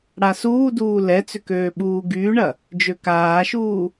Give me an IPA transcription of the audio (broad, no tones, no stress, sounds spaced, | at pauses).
ɽ a s uː d uː l ɛ t͡s ʏ k øː ɓ uː ɡ yː ɳ ɐ | d͡ʒ ø k aː ʃ uː